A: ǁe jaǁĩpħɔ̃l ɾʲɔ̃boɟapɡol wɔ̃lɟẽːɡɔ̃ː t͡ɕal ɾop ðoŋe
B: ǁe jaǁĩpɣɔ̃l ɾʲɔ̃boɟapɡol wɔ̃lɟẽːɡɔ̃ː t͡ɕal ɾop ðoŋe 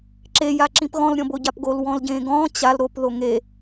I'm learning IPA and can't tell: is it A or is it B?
B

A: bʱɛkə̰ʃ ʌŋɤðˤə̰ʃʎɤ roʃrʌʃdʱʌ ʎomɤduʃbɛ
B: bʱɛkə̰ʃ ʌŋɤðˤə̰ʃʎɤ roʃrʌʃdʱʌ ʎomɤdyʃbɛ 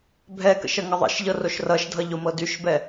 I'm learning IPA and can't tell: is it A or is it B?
B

